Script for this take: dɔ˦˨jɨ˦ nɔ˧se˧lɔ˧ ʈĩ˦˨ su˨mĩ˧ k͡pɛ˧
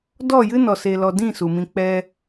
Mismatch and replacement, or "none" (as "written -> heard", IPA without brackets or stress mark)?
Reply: ʈ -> d